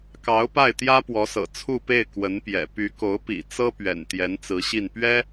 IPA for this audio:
k ɑ˧˥ ʊ̯ p a˥˩ ɪ̯ t̪ j ä˥ p w ɔ˧˥ s ɤ̰˨˩ t͡sʰ u˥˧ p e˥˩ ɪ̯ k w ə˧˥ n p j ɛ̰˨˩ p y˧˥ k o˧˥ ʊ̯ p ḭ˨˩ t͡s ɤ˥ p ɥ ɛ̰˨˩ n t̪ j ɛ˧˥ n t͡s ɹ̩˧˥ ɕ i˥˩ n p ɥ ɛ˥

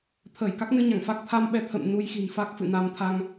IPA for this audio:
t̪ʰ əː˧˩ j k a˦˥ k̚ n ɨ˧ ɲ a˧˩ ŋ f a˦˥ k̚ t̪ʰ a˧ m ɓ ɛ˧ t̪ʰ ə̰˧˨ m n u˧ j x i̤˨˩ n f a˦˥ k̚ f ɨ̰˧˨ n a˧ m t̪ʰ a˧ ŋ

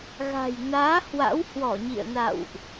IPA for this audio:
ɣ a̤˨˩ j n aː˨˦ h w a̰˧˥ w h w ɔ˧˩ ɲ ḭ˧˨ ə̯ n a̰˧˨ w ʔ

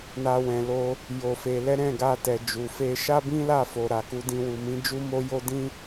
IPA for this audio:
n a˧ w ɛ̃˨ l o˧ | j o˧ f e˧ l ɛ˦ ɾ ɛ̃˦˨ ɡ a˧ t ɛ˨ d͡ʒ u˨ f e˧ ʃ a˦ b ĩ˦ l a˦˨ f o˨ ɾ a˨ k u˧ d ĩ˧ w u˨ m ĩ˨˦ d͡ʒ u˦ m o˦ j o˦ d ĩ˦

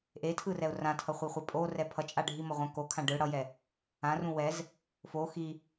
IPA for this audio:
ʔ e tʰ ɯ r ɛ ʊ̯ r ã tʰ ʌ χʷ i χʷ ɛ pʼ o r ɛ pʰ ʌ t͡ʃʼ a ɖʱ i m ʌ ʁʷ ã k o kʰ ã ɖ ɯ ɽ ʌ j ɛ | ã r ũ w ɛ z | f o x i

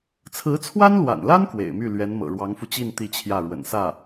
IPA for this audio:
t͡sʰ ɹ̩˧˥ t͡sʰ w a˥ n l w a̰˨˩ n l a˥ n k w ḛ˨˩ ɪ̯ m y˥˩ l ɥ ɛ˧˥ n m ɤ̰˨˩ ɻ w ɑ˧˥ ŋ f u˧ t͡ɕ i˥˧ n t̪ i˥˧ t͡ɕʰ j ä˥˩ ɻ w ə̰˨˩ n s ä˥˩

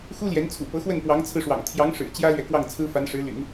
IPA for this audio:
x u˥ l j ɛ˧˥ n t͡sʰ ṵ˨˩ p ɤ˧˥ x w ə˥˩ n p w ɑ˧˥ ŋ t͡sʰ ɹ̩˧ ʂ w ɑ̰˨˩ ŋ t̪ʰ j ɑ˧˥ ŋ ʂ ɻ̩˨˩ t͡ɕ j ä˥ l ɥ ɛ˨ k w ɑ˥˩ ŋ t͡sʰ ɹ̩˥ f a˧˥ n ʂ ɻ̩˧˥ l y̰˨˩˦ n

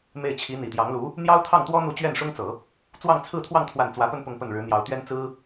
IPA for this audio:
m e˥˩ ɪ̯ t͡ɕʰ i˧˥ n̪ i˨˩ t̪ j ɑ˧˥ ŋ l u˧˥ | n̪ j ɑ˥ ʊ̯ t̪ʰ ɑ˥˩ ŋ t̪ w ɔ˥ n̪ u˥˧ t͡ɕ ɥ ɛ˥˩ n ʂ ʊ˥ ŋ t͡s ɤ˨˩˦ | t͡s w ɑ˥˧ ŋ t͡sʰ ɹ̩˥˧ t̪ʰ w ɑ˥˧ ŋ t̪ʰ w a˥˩ n t͡s w ä˧˥ p ə˥˧ n p ʊ˥˧ ŋ p ə˥˩ n ɻ ɻ̩˧˥ n̪ j ɑ˧˥ ʊ̯ t̪ ɥ ɛ˥ n t͡s ɹ̩˥

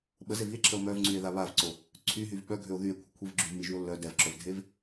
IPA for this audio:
ɓ ə z e v i e̯ ǁʰ ə o̯ m œ v ŋ͡ǀ y e̯ ð a β a v ǀ o | ǀʰ y ɦ y v ɓ œ ɡʱ ø o̯ ð y e̯ kʷʰ ə kʷʰ i v ɡ͡ǁ y v m i ʒ y o̯ lː œ d ɛ v ǁʰ œ v dʱ e v

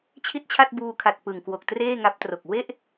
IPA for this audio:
t͡ɕʰ i˥˩ t̚ t͡ɕʰ a˥˩ t̚ b uː˧ kʰ a˨˩ t̚ p ɯ˨˩ ŋ k w o˨˩ k̚ t r eː˥˩ ŋ a˦˥ p̚ t r o˨˩ k̚ w e˥˩ ʔ

